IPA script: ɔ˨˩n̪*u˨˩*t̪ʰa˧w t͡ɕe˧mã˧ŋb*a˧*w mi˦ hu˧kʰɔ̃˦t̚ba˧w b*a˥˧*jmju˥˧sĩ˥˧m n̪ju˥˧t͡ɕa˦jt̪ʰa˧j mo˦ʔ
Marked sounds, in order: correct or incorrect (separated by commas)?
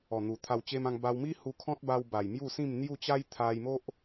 correct, correct, incorrect